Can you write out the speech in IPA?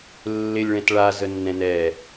lː ɪ lʲ ɭ ɛ̃ t ɭ a z ə nː ɛ̃ n ɛ

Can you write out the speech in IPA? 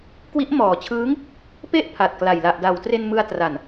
k w i˦˥ ʔ m ɔː˨˩ t͡ɕʰ ɯː˦˥ ŋ | p e˥˩ ʔ pʰ a˨˩ t̚ k l a˨˩ j l a˨˩ ʔ d a˩˦ w t r e˧ n m ɯ˧ a̯ t r a˨˩ n

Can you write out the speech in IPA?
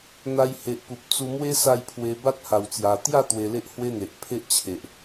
n̪ a˧ j h e˨ ʔ p u˨ p̚ t͡s u˧ m w e˦ s a˥˧ j pʰ w e˧ b a˦ t̚ h a˨˩ w t͡s j a˨˩ t̪ j a˥˧ t̪ w e˧ l e˦ ʔ h w e˦ n̪ e˨ ʔ pʰ e˦ ʔ t͡ɕʰ e˨ ʔ

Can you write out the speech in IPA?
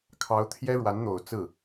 kʰ ɑ˧˥ ʊ̯ t̪ʰ j ɛ˥ ɻ w a˧˥ n n̪ o˨˩ ʊ̯ t͡s ɹ̩˥˩

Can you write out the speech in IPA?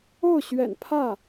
o˥˩ ʊ̯ ɕ ɥ ɛ̰˨˩ n pʰ ä˥˩

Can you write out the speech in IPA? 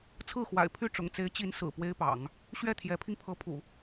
t͡sʰ ɹ̩˥˩ x w a̰˨˩ ɪ̯ pʰ y˥˩ ʈ͡ʂ ʊ̰˨˩ ŋ t͡s e˧˥ ɪ̯ t͡ɕ i˧˥ n s ɹ̩˨˩ p w e˥ ɪ̯ p ɑ̰˨˩˦ ŋ | ɕ ɥ ɛ˥˩ t̪ʰ j ɛ˧˥ pʰ i˧ ŋ pʰ ɤ˧˥ pʰ ṵ˨˩˦

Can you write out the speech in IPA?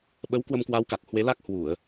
ɓ ə˨˦ w k w ə˧ m k w a˨˦ w k a˨˩ k̚ h w e˨˦ l a˦˥ k̚ h w u˧˩˨ ə̯

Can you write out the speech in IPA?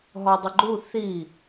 ɦ ɔ dˤ ə ɡ͡ǃ u θ i

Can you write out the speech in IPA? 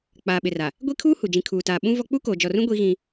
k͡p aː˨ ɓ ɪ˨ r a˨ | ɡʷ i˦ kʰ uː˦ h u˨ d͡ʒ ĩ˨ kʰ uː˨ t aː˨ ɓ ũ˦ v ɔ˦ k͡p u˦ k oː˨ d͡ʒ ɔ˨ r ũ˦ ɡʷ i˦ ɣ ĩ˦

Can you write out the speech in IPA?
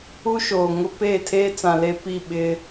u˦ ʃ oː˨ ŋ ʊ˦ p eː˦˨ tʰ eː˦ t͡s ã˨ l e˦ p i˦˨ ɓ ɪ˦

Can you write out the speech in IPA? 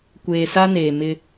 kʷ eː˨ s a˦ n eː˨ m ɪ˦

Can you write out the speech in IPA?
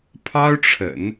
pʰ ɑ˥ ʊ̯ ʈ͡ʂʰ ə̰˨˩˦ n

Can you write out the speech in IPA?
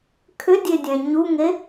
kʰ ʏ dʲ e dʲ ɛ̃ ɲ u ŋ e

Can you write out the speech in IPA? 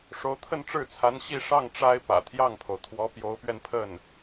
ʂ o˧˥ ʊ̯ t̪ʰ ə˥˧ n ʈ͡ʂ ɻ̩˥˩ t͡sʰ a˧˥ n ɕ i˥˧ ʂ ɑ˥˩ ŋ ʈ͡ʂ a˥ ɪ̯ p ä̰˨˩ t̪ʰ j ɑ˥˩ ŋ pʰ o˩ ʊ̯ t̪ʰ w ɔ˧˥ p j o˧˥ ʊ̯ p ɥ ɛ˧ n pʰ ə˥˩ n

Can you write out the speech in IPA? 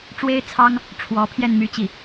ʈ͡ʂ w e˥ ɪ̯ t͡sʰ ɑ˥ ŋ | ʈ͡ʂʰ w ɔ˧˥ pʰ j ɛ˥˧ n m y˥˧ t͡ɕ i˥˩

